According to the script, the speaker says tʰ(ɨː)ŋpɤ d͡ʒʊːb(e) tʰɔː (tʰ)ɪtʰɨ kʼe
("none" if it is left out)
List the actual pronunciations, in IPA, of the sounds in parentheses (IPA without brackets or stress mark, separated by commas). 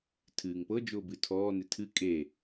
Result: ɨː, ɨ, n